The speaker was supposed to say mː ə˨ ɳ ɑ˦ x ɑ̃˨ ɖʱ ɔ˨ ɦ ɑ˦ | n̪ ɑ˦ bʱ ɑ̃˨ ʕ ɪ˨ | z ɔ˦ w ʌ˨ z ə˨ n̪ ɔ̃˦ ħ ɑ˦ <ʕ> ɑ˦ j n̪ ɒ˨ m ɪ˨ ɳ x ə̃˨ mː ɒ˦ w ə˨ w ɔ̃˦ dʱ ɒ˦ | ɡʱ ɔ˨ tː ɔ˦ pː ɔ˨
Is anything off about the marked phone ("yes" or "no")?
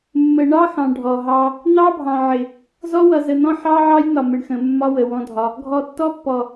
no